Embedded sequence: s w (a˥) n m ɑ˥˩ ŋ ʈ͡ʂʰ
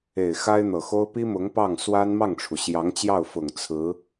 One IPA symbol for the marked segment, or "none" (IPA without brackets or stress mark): a˥